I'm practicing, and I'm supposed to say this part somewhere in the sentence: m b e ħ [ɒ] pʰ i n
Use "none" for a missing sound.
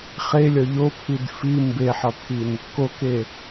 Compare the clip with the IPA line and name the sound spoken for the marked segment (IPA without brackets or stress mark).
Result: ɒ